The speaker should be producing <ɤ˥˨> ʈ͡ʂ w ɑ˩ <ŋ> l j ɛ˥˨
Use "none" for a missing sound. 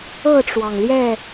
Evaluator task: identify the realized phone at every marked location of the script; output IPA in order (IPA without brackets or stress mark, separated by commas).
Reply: ɤ˥˨, ŋ